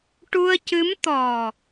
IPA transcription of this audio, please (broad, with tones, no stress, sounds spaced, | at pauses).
ʈ u˧ ə̯ c ɨ˧˥ m t̪ ɔ˨˩